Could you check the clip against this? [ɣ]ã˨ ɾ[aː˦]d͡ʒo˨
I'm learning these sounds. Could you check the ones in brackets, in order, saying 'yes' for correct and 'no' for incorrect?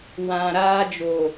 no, yes

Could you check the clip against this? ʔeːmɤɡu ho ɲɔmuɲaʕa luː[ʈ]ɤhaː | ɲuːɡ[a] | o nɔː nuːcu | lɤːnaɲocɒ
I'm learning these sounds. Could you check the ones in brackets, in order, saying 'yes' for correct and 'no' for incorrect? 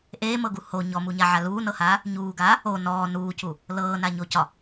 no, no

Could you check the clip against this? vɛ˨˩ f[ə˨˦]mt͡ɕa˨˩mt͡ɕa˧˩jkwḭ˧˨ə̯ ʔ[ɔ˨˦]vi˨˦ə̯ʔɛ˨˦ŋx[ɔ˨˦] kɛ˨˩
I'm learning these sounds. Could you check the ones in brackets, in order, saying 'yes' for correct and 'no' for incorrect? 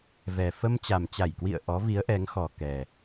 no, yes, no

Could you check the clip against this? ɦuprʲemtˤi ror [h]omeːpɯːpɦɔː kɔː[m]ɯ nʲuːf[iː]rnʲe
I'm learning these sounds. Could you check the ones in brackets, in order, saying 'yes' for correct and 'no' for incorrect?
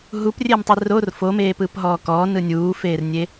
no, no, no

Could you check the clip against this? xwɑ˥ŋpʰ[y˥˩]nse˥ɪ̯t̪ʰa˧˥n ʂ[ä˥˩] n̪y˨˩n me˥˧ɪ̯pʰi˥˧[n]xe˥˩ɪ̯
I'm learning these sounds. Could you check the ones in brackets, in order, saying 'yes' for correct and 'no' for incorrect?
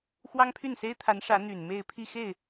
yes, no, no

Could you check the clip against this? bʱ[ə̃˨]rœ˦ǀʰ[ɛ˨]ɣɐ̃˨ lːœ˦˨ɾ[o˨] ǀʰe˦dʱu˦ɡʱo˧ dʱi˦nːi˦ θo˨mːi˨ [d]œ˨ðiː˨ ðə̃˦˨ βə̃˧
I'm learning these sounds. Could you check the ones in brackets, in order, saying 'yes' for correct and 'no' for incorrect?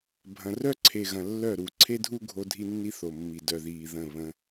no, no, no, yes

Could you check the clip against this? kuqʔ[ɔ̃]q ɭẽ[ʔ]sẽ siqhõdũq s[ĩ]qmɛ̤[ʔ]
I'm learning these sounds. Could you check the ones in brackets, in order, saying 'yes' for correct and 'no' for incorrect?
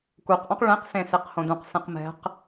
yes, no, no, no

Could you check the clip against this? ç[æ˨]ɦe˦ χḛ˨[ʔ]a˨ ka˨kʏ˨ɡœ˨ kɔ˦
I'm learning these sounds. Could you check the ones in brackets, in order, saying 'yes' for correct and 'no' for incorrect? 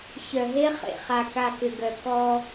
no, no

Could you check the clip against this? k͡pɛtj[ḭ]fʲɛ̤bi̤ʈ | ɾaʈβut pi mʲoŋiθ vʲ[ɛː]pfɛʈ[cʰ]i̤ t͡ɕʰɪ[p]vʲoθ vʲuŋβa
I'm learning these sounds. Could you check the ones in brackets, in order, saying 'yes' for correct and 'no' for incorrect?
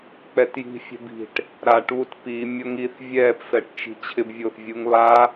no, yes, no, no

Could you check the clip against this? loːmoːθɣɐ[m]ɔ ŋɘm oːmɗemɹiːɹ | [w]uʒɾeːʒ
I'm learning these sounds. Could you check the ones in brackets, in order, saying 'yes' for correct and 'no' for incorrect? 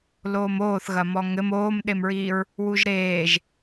yes, yes

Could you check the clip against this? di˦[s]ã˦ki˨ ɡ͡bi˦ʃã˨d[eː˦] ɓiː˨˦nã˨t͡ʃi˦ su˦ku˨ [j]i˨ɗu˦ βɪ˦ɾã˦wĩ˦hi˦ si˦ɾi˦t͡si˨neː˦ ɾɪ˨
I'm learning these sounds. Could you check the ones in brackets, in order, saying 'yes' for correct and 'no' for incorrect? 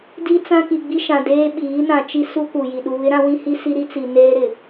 no, yes, yes

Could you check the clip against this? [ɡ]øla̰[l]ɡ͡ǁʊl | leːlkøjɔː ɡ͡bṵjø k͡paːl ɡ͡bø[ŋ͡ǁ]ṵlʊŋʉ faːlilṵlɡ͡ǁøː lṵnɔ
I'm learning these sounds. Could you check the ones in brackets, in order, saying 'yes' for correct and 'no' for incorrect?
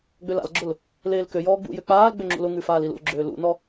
no, yes, yes

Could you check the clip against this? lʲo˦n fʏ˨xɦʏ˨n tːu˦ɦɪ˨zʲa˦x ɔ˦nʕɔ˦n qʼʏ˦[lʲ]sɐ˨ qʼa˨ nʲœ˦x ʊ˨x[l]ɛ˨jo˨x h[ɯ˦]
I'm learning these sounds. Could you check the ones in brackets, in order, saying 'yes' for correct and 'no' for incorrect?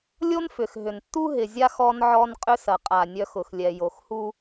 no, no, no

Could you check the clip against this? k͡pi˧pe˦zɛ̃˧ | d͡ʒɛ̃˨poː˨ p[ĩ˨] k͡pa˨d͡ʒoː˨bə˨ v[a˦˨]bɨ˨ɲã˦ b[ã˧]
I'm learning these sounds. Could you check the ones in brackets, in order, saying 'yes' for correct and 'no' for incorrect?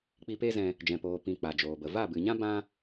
yes, yes, no

